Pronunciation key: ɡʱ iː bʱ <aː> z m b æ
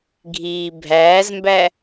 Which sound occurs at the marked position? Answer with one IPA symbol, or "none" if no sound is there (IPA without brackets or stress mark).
æː